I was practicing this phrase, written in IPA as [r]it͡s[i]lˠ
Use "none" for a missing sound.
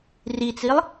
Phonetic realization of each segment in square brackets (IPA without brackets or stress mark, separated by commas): r, i